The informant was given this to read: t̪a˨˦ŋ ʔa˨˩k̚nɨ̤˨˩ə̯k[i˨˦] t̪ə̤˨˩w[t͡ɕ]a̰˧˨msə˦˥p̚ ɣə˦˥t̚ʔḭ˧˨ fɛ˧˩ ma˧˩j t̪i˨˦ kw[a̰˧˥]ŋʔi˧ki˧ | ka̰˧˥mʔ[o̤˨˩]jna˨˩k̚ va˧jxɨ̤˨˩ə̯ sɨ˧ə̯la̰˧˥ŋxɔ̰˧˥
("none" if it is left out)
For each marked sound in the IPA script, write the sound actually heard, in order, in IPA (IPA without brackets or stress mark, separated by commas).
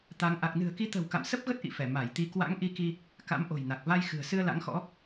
i˨˦, k, a̰˧˥, o̤˨˩